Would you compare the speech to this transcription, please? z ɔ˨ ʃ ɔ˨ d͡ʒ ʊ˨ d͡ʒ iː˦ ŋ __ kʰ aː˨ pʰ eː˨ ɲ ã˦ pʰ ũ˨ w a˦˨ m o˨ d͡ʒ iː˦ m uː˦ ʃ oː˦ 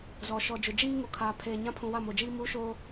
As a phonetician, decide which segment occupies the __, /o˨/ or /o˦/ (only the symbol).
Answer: o˨